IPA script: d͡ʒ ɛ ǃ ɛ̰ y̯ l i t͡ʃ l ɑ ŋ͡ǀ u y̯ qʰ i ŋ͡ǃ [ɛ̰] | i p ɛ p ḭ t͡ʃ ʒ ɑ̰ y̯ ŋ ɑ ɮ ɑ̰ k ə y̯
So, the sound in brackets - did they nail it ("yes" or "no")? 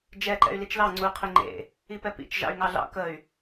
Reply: no